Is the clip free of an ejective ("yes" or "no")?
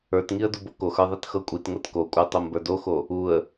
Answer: no